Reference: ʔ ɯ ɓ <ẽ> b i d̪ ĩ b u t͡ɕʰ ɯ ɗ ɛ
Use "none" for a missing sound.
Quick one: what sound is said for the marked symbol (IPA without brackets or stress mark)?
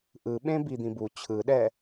ẽ